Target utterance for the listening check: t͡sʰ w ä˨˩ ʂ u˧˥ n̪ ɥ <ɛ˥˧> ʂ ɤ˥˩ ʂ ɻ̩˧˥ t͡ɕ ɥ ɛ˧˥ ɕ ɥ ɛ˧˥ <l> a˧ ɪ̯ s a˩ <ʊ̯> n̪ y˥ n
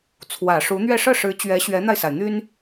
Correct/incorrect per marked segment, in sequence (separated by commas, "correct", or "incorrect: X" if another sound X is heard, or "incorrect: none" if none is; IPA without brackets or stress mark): correct, incorrect: n̪, incorrect: ɪ̯